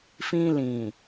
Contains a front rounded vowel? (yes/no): no